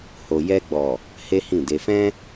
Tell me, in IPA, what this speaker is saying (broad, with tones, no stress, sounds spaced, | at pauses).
h o˨ j ɛ˧ ɡ͡b ɔ˨ | h e˦ h ĩ˦˨ d e˧ f ɛ̃˦